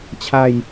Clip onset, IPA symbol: t͡ɕʰ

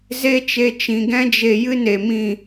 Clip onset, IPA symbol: z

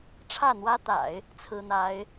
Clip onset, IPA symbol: ʈ͡ʂʰ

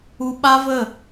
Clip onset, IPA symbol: u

